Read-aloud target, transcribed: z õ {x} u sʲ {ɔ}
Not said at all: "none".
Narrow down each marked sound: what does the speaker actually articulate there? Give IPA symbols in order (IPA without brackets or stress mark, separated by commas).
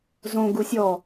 ɡ, ɔ